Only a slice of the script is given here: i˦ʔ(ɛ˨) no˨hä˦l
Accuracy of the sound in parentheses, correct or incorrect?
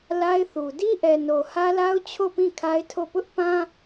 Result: correct